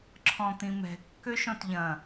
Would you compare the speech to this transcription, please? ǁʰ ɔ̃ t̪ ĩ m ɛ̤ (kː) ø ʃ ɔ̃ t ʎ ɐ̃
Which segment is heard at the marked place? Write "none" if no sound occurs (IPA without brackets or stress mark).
kː